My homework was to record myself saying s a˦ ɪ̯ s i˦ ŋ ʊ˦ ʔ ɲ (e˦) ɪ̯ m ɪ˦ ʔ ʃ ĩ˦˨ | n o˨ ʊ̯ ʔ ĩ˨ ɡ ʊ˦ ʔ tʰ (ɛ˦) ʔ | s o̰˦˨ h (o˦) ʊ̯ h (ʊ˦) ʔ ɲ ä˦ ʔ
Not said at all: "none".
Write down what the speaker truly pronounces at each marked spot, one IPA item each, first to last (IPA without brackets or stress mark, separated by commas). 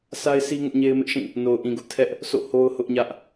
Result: e˦, ɛ˦, o˦, ʊ˦